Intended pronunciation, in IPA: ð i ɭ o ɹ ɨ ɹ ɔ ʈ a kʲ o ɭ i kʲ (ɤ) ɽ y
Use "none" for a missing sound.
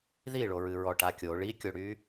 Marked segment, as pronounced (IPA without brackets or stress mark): o